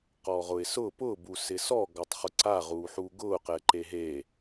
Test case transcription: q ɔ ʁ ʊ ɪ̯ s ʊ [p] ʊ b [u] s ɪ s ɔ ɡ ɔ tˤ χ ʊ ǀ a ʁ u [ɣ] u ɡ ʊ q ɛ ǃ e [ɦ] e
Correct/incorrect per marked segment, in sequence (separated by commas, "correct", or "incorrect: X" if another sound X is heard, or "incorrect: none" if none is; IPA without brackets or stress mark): correct, correct, incorrect: ħ, correct